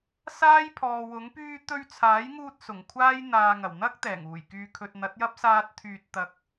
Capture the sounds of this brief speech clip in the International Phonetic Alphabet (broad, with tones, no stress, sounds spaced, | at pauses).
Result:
s aː˥ j pʰ ɔː˨ w ʊ˨˥ ŋ p yː˧ t̪ ɵ˧ ɥ t͡sʰ aː˨˥ j ŋ uː˧ t̚ s ʊ˨˩ ŋ kʷʰ aː˥ j n̪ aː˨ ŋ ɐ˨˩ w n̪ ɐ˥ k̚ t̪ ɛː˨˩ ŋ uː˨˩ j k yː˨ kʰ ɵ˨ t̚ n̪ ɐ˨˥ t̚ j ɐ˥ p̚ s aː˥ t̚ t̪ʰ yː˧ t̚ t̪ ɐ˨ k̚